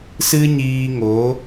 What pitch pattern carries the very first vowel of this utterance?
high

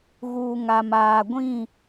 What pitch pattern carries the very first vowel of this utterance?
low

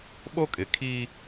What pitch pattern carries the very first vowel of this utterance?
high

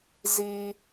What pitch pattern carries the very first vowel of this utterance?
high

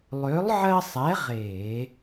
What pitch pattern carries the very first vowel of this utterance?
rising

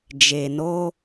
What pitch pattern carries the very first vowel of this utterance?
low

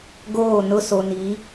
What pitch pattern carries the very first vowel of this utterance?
falling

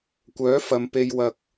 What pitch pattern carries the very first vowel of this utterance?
rising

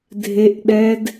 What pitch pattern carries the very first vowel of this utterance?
high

